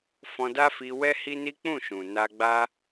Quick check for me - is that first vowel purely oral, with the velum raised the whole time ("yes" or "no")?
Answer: no